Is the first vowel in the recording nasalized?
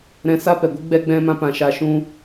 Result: yes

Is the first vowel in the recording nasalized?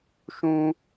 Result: yes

